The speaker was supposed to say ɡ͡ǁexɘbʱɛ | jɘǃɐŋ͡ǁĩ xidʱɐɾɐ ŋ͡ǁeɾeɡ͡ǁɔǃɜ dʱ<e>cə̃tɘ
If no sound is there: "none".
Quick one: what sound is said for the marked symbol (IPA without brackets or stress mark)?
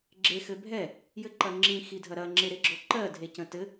e